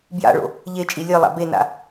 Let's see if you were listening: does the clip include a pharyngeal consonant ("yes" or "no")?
no